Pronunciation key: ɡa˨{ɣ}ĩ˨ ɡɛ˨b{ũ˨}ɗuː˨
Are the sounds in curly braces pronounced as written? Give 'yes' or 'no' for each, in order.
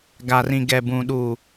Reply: no, yes

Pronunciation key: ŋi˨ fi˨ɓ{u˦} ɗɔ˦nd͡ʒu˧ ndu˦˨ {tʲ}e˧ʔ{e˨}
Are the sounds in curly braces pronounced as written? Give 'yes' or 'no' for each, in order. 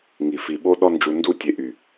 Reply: no, yes, no

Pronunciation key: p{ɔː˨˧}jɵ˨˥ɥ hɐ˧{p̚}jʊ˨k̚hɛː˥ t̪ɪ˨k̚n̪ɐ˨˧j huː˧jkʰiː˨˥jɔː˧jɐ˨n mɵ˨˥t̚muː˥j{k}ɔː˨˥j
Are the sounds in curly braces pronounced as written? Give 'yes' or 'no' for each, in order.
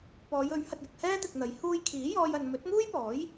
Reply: yes, no, no

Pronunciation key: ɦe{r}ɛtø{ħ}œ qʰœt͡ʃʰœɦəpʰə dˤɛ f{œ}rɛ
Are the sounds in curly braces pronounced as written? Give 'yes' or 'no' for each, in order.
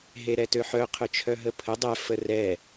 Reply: no, yes, no

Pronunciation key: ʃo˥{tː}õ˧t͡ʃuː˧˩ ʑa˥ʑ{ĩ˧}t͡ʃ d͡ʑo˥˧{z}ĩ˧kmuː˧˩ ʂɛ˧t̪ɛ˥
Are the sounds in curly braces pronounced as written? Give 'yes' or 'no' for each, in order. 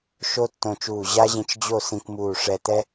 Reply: yes, yes, no

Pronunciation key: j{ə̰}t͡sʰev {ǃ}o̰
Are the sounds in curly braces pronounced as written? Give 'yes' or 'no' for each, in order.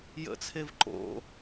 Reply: yes, yes

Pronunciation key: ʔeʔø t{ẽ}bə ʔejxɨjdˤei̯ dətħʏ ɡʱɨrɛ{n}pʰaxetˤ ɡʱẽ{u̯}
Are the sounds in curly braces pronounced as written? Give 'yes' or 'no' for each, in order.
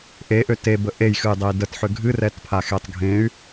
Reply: no, no, no

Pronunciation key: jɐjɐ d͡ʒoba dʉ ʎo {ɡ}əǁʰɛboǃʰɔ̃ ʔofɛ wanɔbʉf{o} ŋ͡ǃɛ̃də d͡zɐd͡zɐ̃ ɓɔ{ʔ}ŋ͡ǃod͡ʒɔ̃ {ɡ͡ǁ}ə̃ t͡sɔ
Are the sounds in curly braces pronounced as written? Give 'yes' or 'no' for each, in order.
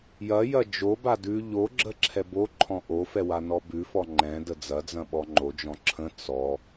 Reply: no, no, no, no

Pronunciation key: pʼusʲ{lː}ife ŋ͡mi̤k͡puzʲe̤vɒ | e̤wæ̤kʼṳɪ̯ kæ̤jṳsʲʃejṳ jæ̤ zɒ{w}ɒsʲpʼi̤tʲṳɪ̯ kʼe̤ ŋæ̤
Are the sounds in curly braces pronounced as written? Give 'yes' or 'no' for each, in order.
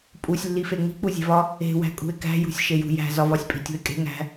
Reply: yes, no

